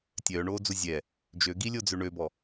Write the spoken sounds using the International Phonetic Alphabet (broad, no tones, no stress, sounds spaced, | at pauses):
tʲ œ ɳ oː d͡z u zʲ ɛ | d͡ʒ ø ɡ i lʲ o d͡z ø ɳ ø b ɔ